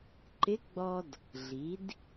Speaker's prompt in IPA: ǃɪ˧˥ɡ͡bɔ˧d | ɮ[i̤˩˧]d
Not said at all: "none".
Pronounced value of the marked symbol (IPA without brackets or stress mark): i˩˧